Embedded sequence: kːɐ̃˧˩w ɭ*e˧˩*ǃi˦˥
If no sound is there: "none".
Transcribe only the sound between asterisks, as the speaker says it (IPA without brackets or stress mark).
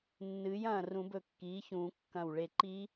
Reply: e˧˩